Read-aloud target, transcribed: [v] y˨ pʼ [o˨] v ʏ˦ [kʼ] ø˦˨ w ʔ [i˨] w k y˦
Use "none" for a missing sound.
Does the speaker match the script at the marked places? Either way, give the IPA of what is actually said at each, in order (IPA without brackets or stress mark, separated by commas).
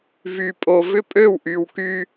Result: v, o˨, pʼ, y˨